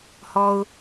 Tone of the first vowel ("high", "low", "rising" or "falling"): high